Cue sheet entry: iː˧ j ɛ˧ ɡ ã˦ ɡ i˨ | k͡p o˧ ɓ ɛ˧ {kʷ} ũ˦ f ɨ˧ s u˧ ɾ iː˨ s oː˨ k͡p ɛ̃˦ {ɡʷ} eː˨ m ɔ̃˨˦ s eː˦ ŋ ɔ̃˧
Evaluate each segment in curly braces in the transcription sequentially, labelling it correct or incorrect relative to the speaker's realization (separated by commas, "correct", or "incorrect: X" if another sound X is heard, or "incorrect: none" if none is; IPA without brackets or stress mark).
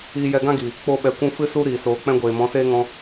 correct, correct